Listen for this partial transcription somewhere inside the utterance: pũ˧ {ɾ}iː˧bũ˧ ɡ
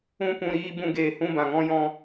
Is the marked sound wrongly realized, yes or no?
no